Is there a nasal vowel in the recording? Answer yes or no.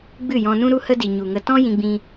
yes